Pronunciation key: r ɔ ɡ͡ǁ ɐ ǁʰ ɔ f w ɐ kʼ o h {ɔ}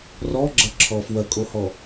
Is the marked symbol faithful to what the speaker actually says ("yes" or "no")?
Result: yes